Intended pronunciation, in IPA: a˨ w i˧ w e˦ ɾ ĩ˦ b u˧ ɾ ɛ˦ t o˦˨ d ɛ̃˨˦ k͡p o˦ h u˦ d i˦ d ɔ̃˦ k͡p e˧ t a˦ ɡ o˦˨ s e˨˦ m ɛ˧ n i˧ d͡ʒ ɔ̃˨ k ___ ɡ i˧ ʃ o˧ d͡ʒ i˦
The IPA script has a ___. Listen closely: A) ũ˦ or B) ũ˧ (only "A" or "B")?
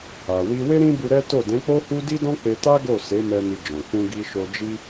B